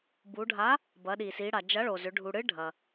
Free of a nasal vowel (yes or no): yes